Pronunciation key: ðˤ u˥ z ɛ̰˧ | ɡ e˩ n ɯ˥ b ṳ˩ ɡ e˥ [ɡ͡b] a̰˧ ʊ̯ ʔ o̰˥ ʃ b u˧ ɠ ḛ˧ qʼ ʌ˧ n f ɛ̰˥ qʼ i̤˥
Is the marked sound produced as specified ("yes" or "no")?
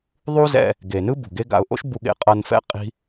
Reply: no